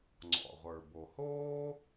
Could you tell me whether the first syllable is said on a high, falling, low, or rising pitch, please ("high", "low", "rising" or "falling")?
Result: low